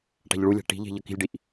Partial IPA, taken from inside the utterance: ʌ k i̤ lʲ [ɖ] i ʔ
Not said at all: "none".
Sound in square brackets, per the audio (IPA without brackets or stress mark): ɖ